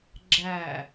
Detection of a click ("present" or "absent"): present